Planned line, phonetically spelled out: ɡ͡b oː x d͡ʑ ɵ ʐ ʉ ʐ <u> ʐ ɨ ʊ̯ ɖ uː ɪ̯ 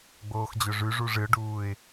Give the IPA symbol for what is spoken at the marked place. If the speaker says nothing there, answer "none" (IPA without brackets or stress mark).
u